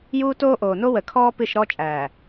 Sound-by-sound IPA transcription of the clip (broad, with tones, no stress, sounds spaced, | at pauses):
j uː˦ t oː˦ ʔ oː˨ n o˦ w ə˨ kʰ ɔː˦ p ɨ˦˨ ʃ ɾ ɔ˦ t͡ʃʼ æː˨